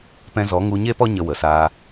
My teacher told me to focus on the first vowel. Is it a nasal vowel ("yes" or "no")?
yes